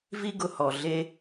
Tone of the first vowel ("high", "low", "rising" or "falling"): high